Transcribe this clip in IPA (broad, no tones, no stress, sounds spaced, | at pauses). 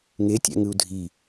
ŋ e tʲ æ̰ ŋ ɯ u̯ dʱ i